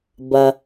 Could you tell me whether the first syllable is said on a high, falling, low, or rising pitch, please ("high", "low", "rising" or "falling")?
low